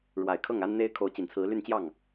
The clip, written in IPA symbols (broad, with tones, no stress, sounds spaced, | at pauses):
ɻ w a˨˩ ɪ̯ kʰ ɤ˥˩ ŋ a˥ n n̪ e˥ ɪ̯ kʰ o˧˥ ʊ̯ t͡ɕ i˨˩ n t͡sʰ ɹ̩˧˥ l y˥˧ n t͡ɕ j ɑ˥˩ ŋ